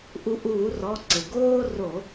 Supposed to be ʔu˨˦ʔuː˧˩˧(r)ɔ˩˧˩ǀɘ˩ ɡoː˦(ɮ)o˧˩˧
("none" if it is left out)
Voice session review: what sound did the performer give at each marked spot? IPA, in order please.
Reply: r, r

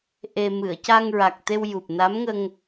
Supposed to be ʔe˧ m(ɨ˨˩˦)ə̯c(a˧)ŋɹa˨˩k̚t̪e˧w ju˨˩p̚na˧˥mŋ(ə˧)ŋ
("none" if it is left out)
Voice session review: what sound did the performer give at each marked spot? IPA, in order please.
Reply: ɨ˨˩˨, a˧, ə˧

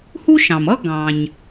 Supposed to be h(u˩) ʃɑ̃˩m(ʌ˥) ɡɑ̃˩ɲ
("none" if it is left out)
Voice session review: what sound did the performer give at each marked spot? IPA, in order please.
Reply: u˥, ʌ˥

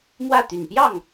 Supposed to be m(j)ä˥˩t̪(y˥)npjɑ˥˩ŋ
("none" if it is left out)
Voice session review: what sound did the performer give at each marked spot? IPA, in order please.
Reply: w, y˨˩

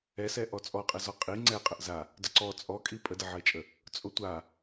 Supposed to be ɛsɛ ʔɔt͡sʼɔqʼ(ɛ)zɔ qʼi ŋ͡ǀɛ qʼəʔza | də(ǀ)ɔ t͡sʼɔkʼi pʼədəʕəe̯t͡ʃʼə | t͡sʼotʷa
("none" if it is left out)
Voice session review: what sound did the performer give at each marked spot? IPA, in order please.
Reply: ɛ, ǀ

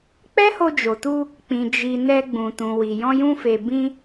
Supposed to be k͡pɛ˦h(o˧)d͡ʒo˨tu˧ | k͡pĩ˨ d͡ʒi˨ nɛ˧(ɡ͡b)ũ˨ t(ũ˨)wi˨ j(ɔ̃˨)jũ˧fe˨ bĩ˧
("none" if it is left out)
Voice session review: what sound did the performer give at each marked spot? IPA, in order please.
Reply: o˧, ɡ͡b, ũ˨, ɔ̃˧

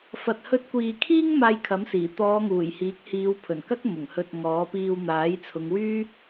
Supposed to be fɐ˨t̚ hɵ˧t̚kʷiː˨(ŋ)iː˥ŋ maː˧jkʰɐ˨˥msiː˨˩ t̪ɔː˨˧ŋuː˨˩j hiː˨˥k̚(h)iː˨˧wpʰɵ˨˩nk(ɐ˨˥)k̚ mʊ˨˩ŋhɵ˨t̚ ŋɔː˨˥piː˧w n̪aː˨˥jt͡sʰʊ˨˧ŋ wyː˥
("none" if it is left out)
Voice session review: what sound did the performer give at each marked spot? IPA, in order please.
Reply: kʰ, h, ɐ˥

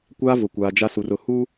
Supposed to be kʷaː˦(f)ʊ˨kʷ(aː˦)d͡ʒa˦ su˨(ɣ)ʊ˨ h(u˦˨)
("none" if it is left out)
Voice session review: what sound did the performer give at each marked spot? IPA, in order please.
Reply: v, aː˨, r, u˦

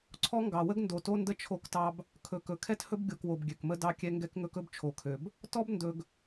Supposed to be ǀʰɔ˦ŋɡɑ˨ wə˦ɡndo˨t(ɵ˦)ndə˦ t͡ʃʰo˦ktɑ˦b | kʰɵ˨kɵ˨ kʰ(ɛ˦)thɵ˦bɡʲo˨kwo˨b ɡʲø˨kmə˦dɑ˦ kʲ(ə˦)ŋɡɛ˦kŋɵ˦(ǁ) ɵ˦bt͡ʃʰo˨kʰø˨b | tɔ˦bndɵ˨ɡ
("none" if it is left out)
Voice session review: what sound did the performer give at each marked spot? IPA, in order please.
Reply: o˦, ɛ˦, ɛ˦, k

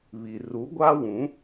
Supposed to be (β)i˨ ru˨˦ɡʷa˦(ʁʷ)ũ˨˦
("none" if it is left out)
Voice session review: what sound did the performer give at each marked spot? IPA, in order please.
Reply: β, w

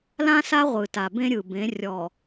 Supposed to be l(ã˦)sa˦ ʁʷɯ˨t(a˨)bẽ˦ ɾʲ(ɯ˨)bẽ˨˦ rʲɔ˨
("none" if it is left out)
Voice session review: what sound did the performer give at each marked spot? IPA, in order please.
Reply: ã˦, a˨, ɯ˨

